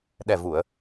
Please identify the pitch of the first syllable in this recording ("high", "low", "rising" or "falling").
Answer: low